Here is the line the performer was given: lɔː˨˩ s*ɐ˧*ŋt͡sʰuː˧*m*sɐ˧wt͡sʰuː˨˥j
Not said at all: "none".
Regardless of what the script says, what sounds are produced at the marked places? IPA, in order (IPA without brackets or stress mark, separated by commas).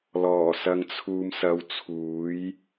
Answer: ɐ˧, m